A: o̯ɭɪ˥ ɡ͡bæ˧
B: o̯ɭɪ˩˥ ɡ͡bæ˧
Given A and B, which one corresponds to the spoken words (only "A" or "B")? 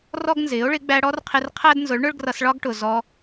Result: B